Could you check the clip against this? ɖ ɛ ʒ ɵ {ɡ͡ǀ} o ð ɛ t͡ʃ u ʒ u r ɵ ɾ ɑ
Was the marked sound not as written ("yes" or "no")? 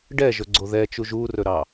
no